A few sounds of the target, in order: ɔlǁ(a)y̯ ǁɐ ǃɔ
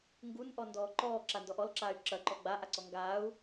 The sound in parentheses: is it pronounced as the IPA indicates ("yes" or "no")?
no